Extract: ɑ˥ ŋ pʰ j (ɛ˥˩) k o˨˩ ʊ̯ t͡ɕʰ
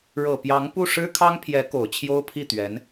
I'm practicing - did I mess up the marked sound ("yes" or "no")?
yes